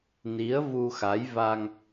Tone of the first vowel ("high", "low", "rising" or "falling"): rising